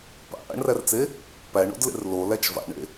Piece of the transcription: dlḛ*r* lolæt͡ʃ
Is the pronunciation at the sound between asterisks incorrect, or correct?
correct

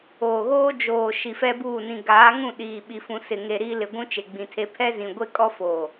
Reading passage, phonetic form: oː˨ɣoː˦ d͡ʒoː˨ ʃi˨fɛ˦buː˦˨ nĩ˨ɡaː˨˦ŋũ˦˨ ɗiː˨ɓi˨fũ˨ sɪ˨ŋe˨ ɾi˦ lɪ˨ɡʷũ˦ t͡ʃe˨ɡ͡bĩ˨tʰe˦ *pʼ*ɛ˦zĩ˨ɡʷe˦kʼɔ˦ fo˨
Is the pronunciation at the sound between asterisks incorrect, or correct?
incorrect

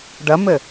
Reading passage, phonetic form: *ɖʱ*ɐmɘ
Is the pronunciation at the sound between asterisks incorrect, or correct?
incorrect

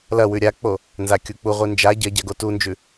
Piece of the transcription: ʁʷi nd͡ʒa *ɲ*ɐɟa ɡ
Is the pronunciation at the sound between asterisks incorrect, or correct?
incorrect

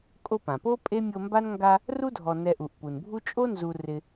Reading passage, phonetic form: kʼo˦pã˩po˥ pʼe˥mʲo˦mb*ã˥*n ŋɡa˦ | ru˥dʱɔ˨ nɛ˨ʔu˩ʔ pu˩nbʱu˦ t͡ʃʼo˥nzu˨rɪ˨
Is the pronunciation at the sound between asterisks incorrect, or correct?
incorrect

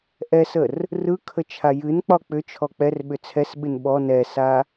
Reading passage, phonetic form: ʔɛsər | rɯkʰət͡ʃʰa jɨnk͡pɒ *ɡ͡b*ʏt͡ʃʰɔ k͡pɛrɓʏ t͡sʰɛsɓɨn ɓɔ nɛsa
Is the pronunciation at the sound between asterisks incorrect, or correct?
incorrect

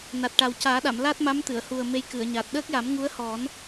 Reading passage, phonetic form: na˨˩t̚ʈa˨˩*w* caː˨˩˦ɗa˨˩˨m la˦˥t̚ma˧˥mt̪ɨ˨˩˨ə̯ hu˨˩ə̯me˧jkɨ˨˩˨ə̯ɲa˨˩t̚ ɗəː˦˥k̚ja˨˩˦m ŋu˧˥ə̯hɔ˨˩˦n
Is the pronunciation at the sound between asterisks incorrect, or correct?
correct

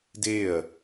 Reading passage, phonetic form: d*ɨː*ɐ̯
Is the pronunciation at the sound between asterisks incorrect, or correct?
incorrect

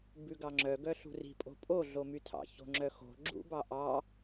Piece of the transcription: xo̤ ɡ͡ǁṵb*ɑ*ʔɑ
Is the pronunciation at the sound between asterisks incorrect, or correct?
correct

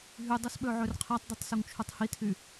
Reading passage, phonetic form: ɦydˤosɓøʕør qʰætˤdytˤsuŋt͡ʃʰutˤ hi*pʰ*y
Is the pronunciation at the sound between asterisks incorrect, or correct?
incorrect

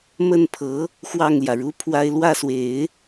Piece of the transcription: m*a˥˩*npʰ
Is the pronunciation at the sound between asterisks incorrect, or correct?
incorrect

